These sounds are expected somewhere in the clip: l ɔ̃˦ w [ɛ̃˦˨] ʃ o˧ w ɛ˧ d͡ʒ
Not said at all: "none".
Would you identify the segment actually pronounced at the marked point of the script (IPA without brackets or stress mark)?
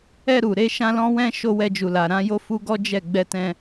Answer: ɛ̃˦